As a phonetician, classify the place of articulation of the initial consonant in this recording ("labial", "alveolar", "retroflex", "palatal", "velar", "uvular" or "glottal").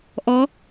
glottal